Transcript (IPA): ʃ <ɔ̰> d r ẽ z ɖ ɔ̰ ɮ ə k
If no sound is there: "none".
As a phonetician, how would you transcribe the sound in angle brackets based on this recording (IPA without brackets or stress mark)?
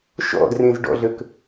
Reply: ɔ̰